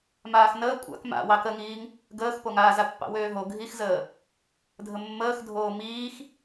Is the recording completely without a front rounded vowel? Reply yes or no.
no